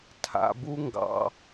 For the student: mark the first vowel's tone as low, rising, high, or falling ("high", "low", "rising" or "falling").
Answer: low